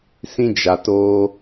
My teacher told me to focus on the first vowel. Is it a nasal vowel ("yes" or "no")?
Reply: yes